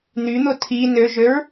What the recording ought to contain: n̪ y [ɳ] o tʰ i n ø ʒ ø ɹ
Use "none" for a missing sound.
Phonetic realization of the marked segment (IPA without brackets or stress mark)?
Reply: n̪